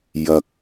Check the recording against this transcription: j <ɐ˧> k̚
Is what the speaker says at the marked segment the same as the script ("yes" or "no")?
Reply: yes